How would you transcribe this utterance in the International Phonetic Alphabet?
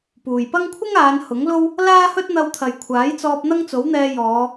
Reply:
puː˨j pɐ˥ŋ kʷʰɪ˥ŋaː˨˧n hʊ˨˥ŋlo˥w | laː˥hɵ˥t̚ n̪ɐ˧wt̪ʰɐ˨jkʷʰaː˨˥jt͡sɔː˧p̚ n̪ɐ˥ŋt͡so˨˥wn̪ɛː˧ jɔː˨˧

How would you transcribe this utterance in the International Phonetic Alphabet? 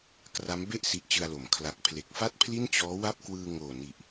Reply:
kra˦˥m be˥˩ʔ si˦˥ʔt͡ɕɯ˧a̯lo˩˦m kʰla˨˩k̚pʰle˨˩k̚fa˥˩t̚ pʰli˥˩nt͡ɕɔː˦˥wa˥˩p̚kwɯː˧ ŋoː˨˩ni˨˩ʔ

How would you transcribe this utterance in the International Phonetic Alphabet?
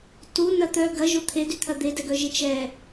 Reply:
tu nɐt̪œ ɡɐʒo t̪ʰedyt̪ʰɐ d̪edɛɡœʒe t͡ʃɛ

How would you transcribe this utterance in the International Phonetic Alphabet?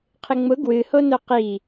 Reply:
qʰɪŋ͡mʊ ɡwɨhono qi

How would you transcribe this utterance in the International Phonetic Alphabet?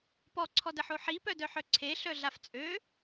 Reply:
pɔǀʰɔdəħo ħipœdœħœ ǀʰeɬœɮaf t͡sʼø

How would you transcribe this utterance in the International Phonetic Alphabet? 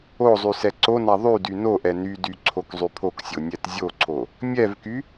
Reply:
ozˤy sɛǀona ðˤydy noʔɛ nydy ǀʰokzˤypʰoksʲo nʲɛtzʲoǀʰo | mʲɛvky

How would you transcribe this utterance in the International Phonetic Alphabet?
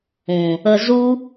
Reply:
ũ˨ | ə˧zu˦

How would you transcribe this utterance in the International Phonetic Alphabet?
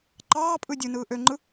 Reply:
ǃɑːpʼɯ dʲɯnɯː ʔøŋ͡ǃɯ

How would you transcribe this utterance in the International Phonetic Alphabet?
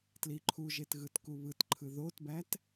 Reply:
tliǃʰuʒet ɣɯtkuβɯtǃʰɯ ðotbæt

